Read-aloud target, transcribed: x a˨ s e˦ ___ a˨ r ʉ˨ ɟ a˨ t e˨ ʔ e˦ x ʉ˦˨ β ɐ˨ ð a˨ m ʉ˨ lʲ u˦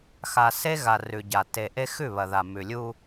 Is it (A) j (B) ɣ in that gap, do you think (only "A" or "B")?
B